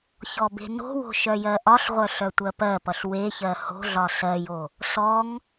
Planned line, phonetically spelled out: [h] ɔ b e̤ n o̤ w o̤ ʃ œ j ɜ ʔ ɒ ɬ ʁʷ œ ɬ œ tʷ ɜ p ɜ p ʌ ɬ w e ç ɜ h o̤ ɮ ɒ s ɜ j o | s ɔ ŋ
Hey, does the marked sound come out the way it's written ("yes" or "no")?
no